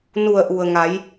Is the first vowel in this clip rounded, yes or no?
yes